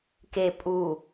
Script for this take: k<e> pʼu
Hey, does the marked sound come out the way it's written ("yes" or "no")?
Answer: yes